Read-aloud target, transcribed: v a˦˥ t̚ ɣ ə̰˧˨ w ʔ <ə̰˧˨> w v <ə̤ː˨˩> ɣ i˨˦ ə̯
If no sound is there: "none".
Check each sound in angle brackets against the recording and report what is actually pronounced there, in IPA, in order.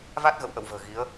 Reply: ə̰˧˨, ə̤ː˨˩

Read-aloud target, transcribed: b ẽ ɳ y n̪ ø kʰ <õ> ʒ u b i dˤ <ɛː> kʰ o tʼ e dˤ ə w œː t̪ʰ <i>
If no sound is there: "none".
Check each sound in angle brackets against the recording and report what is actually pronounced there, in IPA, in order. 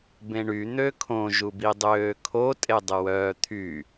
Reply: õ, øː, y

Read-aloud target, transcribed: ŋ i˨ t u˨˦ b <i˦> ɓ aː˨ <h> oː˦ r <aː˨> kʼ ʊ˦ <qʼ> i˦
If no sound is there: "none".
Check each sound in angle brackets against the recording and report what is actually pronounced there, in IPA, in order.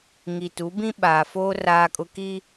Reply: ĩ˦, f, aː˦, k

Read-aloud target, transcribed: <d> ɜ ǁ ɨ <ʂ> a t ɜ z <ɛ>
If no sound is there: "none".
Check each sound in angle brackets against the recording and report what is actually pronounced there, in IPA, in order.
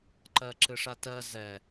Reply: ǃ, ʂ, ɛ

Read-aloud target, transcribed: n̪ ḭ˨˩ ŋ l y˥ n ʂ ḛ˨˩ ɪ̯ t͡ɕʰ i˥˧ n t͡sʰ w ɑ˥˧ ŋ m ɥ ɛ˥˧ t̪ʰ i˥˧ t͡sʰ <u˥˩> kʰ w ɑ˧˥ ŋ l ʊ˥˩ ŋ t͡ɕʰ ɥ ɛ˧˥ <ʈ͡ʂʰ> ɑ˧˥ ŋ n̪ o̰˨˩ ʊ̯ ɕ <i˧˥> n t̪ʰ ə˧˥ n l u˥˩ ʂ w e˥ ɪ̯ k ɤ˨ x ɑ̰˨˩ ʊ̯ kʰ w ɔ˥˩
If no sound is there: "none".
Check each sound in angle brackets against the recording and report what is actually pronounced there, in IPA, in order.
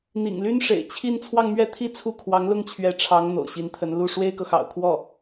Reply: u˥˩, ʈ͡ʂʰ, i˧˥

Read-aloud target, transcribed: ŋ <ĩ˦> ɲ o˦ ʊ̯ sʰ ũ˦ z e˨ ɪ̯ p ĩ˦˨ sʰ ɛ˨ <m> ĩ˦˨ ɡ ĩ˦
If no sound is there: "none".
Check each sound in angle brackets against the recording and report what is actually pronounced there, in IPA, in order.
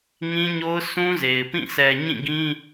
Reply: ĩ˦, ɲ

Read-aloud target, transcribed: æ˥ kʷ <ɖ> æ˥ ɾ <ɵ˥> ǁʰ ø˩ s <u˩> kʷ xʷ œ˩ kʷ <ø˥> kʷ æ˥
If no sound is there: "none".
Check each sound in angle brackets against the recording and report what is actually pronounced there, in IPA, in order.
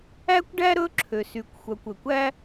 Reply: ɖ, ɵ˥, y˩, ø˩

